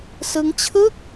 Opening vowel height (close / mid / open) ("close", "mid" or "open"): close